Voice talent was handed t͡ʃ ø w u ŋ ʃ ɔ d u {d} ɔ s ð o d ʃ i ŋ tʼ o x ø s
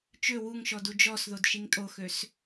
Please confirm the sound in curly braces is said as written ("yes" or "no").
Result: no